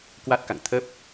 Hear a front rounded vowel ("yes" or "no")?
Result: no